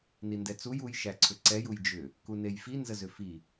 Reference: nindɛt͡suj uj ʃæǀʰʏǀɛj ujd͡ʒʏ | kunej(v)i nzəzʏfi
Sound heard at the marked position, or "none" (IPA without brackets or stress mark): f